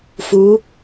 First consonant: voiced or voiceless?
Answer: voiceless